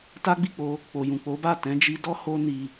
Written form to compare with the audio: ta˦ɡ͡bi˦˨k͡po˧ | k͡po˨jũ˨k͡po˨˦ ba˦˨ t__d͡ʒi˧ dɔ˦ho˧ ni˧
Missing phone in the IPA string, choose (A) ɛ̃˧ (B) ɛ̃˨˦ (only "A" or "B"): B